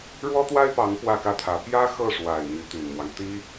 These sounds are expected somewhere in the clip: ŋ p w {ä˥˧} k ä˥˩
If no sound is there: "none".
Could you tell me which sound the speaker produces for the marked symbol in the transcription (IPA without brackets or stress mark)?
ä˥˧